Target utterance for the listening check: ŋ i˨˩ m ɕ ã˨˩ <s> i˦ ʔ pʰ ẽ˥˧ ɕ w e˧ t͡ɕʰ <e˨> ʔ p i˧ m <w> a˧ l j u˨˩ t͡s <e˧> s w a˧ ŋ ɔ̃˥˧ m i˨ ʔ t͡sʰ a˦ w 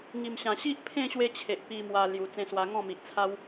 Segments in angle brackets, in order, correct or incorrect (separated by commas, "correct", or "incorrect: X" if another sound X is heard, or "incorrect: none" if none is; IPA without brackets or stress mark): incorrect: ɕ, correct, correct, incorrect: ẽ˧